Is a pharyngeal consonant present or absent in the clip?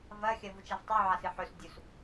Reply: present